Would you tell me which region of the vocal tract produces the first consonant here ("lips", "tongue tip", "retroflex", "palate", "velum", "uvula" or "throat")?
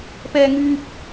lips